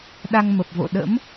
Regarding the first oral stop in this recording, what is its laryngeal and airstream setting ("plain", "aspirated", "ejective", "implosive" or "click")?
implosive